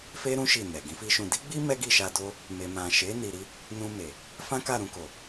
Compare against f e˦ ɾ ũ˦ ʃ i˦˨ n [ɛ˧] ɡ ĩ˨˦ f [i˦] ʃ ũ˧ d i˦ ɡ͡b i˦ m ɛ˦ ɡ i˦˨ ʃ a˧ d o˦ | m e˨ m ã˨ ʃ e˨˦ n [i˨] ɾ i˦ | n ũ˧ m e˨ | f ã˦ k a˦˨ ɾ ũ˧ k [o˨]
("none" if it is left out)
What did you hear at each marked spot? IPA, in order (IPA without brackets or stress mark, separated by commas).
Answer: ɛ˨, i˦, i˧, o˨